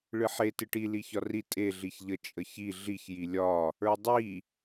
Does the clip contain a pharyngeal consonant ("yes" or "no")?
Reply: yes